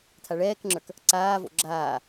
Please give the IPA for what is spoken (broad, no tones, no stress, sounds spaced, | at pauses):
tʰ a ɭ ɛː k ŋ͡ǁ ə˞ k | ǀ aː v o̰ ɡ͡ǁ aː